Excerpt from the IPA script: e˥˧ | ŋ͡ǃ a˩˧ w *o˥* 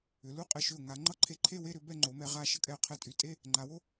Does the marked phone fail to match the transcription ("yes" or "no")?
no